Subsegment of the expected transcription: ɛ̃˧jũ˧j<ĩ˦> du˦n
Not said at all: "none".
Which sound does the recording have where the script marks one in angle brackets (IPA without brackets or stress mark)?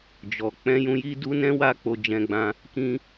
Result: i˦